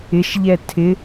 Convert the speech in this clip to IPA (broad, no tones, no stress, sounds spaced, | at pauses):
ɪ ʃ ʎ ɛ tʰ ɪ